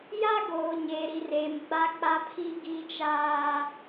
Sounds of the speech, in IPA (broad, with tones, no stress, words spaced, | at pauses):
ja˦ɡoː˨ ɲeː˨ɾi˨reː˨m ɡ͡ba˦k͡pa˦ pʰi˦ɡi˦t͡ʃaː˦